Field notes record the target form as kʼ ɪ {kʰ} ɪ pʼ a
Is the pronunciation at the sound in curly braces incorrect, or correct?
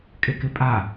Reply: incorrect